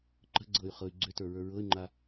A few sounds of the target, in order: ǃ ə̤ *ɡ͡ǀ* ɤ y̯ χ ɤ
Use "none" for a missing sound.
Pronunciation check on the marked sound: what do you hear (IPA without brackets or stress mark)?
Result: ɡ͡ǀ